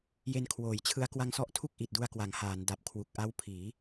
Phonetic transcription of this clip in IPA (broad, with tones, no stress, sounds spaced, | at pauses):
j e˧ n kʰ w oː˩˦ j t͡ɕʰ ɯ˦˥ a̯ k w a˧ ŋ s ɔ˦˥ ʔ tʰ u˥˩ k̚ ʔ i˨˩ t̚ d u˧ a̯ k w a˩˦ ŋ h aː˩˦ n d a˨˩ p̚ kʰ w u˨˩ k̚ ʔ a˦˥ w pʰ iː˩˦